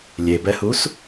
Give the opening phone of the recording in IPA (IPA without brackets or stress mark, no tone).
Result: lʲ